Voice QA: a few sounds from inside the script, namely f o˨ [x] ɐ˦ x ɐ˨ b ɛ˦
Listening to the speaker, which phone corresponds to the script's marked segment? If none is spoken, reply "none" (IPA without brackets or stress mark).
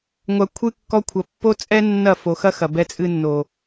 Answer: x